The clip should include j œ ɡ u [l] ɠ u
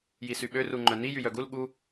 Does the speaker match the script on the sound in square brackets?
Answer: yes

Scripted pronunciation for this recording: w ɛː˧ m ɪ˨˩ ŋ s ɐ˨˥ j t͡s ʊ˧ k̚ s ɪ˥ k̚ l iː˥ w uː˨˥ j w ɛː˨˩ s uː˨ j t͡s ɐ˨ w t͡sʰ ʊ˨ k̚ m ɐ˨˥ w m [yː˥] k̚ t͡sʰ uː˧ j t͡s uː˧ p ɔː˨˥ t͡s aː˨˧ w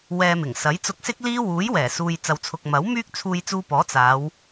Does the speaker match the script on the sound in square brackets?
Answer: yes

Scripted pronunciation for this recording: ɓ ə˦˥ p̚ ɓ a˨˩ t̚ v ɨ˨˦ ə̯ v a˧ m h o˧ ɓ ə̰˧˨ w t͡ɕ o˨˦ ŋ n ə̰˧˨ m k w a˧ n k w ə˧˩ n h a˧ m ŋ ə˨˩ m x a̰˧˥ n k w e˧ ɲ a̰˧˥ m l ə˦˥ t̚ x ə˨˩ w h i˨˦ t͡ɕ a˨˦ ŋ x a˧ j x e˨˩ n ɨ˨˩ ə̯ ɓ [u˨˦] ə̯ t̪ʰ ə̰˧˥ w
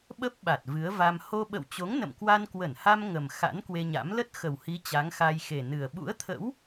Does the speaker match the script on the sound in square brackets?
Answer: no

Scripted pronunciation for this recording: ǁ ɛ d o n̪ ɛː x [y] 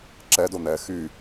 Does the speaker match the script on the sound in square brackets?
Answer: yes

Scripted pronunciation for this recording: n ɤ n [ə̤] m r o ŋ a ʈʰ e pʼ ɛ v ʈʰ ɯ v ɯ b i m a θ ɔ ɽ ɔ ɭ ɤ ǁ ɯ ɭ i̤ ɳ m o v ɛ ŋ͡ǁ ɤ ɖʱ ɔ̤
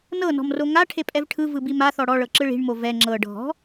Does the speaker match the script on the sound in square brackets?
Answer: no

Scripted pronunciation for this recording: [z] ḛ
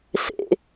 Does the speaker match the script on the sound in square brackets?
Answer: no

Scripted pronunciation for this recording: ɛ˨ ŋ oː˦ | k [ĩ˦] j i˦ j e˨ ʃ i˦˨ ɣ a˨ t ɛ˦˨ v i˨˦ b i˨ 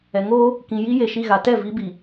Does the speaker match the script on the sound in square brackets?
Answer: no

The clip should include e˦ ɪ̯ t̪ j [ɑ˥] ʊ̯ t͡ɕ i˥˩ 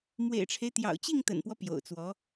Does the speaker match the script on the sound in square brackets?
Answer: no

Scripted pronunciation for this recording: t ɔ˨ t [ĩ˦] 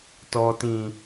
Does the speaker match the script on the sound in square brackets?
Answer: no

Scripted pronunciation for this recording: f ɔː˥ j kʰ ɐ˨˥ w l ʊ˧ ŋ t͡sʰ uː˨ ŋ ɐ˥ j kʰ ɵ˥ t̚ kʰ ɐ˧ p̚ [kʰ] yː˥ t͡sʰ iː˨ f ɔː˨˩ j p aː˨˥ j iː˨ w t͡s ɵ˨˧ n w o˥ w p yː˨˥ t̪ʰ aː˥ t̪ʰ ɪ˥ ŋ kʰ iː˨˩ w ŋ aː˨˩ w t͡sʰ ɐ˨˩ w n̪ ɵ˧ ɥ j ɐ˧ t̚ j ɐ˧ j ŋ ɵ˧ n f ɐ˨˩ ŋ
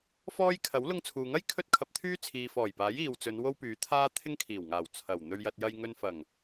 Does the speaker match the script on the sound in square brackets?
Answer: no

